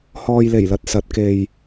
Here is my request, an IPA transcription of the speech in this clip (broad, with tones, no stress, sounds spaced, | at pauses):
h ɔː˨ j l e˨˩ j l ɐ˨ t̚ s ɐ˨˥ t̚ k e˨ j